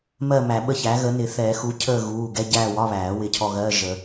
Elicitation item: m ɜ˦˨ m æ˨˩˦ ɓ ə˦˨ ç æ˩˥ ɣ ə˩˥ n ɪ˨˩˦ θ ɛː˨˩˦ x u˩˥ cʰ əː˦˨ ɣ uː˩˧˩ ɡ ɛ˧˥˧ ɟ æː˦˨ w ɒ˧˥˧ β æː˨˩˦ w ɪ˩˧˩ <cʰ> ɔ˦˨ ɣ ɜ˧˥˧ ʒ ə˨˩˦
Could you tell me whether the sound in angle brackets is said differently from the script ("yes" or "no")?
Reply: no